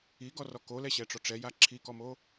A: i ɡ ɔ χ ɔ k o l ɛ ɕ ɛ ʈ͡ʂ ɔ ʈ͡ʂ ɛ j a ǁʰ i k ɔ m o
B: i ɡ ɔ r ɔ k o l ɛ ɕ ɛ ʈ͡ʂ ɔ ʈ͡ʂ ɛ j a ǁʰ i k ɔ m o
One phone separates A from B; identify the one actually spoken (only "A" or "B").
B